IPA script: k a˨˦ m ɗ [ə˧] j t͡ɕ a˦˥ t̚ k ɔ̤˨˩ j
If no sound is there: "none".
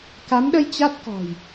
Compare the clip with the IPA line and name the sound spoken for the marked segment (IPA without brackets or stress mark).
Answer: ə˧